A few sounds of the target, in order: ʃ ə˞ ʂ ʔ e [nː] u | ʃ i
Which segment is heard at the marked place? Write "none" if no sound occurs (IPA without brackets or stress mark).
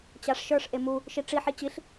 m